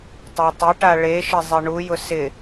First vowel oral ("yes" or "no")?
yes